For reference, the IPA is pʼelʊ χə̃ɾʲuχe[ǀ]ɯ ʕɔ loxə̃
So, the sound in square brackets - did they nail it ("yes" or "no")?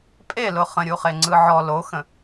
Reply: no